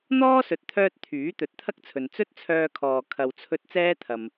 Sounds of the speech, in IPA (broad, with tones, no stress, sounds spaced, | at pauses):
n̪ ɔː˥ s ɵ˨ t̚ t̪ʰ œː˧ t̚ t̪ʰ yː˨˥ t̪ ɵ˨˥ t̚ t̪ʰ ɐ˥ k̚ t͡sʰ ɵ˨ n t͡s ɵ˥ t̚ t͡sʰ œː˧ kʰ ɔː˨ kʰ ɐ˨ w t͡sʰ ɵ˧ t̚ t͡s ɛː˥ t̪ʰ ɐ˨ m